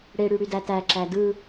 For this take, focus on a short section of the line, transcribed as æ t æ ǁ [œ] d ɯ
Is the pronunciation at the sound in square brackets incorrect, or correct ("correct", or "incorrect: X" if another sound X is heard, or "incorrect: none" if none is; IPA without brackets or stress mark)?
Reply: incorrect: æ